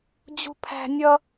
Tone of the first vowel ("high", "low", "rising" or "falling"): high